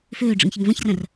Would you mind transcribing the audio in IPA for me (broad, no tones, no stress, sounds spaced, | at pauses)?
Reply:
f øː ɖ͡ʐ ə̰ ŋ ç ə ŋ v ɐ̃ ç r ɐ̃ r